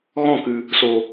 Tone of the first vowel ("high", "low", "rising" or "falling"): falling